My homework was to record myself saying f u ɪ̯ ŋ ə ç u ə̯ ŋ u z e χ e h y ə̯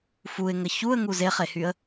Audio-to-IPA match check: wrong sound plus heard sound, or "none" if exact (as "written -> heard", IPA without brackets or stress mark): none